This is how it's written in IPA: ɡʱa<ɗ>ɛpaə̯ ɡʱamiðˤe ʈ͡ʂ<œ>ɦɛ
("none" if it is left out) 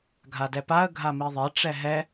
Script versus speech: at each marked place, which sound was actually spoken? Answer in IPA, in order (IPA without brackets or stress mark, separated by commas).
d, ɛ